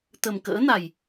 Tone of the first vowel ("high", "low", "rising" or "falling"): low